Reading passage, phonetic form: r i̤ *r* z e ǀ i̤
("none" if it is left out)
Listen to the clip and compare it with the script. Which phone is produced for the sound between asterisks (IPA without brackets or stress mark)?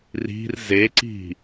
r